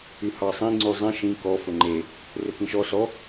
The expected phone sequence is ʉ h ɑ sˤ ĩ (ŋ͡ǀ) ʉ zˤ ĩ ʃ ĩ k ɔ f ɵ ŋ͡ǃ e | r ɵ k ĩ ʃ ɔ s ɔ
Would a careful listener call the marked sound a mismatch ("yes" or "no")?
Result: no